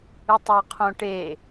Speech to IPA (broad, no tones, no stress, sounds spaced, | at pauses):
ɯ tˤ a qʰ õ ʈ e